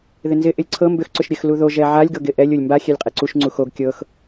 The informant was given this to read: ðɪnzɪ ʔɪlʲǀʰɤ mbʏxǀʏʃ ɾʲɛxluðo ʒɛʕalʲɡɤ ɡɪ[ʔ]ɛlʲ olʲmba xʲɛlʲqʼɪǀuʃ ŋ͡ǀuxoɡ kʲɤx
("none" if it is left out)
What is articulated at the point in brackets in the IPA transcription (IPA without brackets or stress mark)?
ʔ